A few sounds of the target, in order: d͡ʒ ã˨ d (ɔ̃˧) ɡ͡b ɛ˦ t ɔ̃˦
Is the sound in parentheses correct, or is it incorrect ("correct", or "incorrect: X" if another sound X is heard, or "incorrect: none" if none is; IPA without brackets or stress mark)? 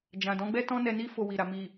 incorrect: ɔ̃˨˦